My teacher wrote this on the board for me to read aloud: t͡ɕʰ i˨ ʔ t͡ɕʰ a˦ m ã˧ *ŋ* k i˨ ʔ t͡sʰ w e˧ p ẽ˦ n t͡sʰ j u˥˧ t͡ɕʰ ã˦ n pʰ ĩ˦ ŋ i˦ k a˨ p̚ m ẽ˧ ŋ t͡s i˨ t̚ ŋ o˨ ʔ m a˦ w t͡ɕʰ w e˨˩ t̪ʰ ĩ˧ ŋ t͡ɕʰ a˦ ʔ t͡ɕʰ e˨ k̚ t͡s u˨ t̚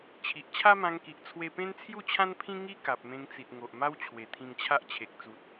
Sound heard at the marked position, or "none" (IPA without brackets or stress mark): ŋ